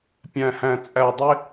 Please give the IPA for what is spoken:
pʲ æ̃˨ h æ̃˨ t͡sʼ æ˨ dˤ ɪ˧

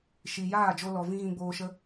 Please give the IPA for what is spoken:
ʃ i˨ j aː˦˨ d͡ʒ o˧ l ɔ˨ v ĩ˦ ɣ ĩ˦ ɡ͡b oː˦ ʃ ə˦

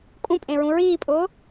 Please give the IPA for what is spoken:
kʼ ũ pʼ ẽ ɹ ũ ɹ iː pʼ ʊː

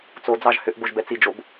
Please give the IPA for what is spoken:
t͡s o d͡z ɑ ʒ h ʏ ʔ b o ʒ b ɛ t͡s i d͡ʒ o b

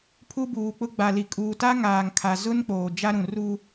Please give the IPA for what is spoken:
pʰ u˦ b uː˨ k͡p ʊ˦ ɡ͡b a˨ l i˨ kʼ uː˨ t a˦ ŋ aː˨ ŋ kʰ a˨ z ʊ˦ n k͡p oː˨ d͡ʒ a˦ ɾ ũ˨ r u˦

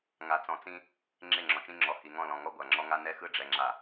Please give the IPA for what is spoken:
ŋ a˨ t͡s ɔ̃˨ t͡s ĩ˦ | ŋ͡ǁ e˦˨ ŋ͡ǁ ɔ̃˨ t͡ʃ ĩ˦ ŋ͡ǁ ɔ˨˦ h i˨ ŋ ɔ̃˦˨ l ɔ̃˨ ŋ ɔ˦ ɡʷ a˨ ŋ͡ǁ ɔ˦ ŋ a˦ n ɛ˦ x ɯ˦ ɖ͡ʐ ɛ˨ ŋ͡ǁ a˨

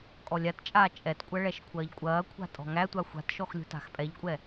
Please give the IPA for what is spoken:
kʼ ɔ lʲ a t t͡ʃʼ aː t͡ʃʼ ɛ t kʷʼ ɐ ɭ ɛ ʃ kʷʰ ɐː ʎ kʷʼ ɐː kʷʰ a̤ tʼ ɔ̤ ŋ æ tʷ a xʷ a̤ t ʃ ɔ x lʲ ṳ t a̤ x pʼ ɛ ʎ kʷʼ ɛ

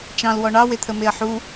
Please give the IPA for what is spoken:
t͡ʃ ɑ̃ l w ɔ ɳ ɑ w e t̪ʰ ə m e ɐ̯ ħ u

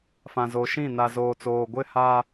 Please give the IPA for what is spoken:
f ã˨ z o˨ ʃ ĩ˦˨ n a˨ z oː˨ t͡s oː˨ ɡʷ ɪ˦ h a˦

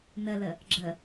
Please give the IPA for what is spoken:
n ə l ə | ɡ͡ǁ ə

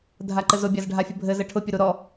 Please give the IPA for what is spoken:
dʱ a ǃ ɘ z ʊ bʲ a z ɖʱ a fʲ ə bʱ ɘ z ɘ ʈʰ ʊ pʲ ʊ ɾ u ɾ ɔ

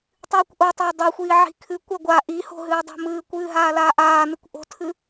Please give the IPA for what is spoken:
tˤ ɨː kʷ ʔ o tˤ a dˤ o xʷ iː ʕ i̤ kʰ ɨ kʷ a ɡʷ a ʔ i h o̤ ɦ ɨː dˤ o̤ m ɨː kʷ ɨː ɦ aː l aː ʔ aː n ɨ kʷ ʔ o̤ tʰ ɨ

